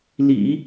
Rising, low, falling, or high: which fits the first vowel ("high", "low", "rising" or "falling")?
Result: low